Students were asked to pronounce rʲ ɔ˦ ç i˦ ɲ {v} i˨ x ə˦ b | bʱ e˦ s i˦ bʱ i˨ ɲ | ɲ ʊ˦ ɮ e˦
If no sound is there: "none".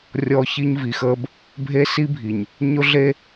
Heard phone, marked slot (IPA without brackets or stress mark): v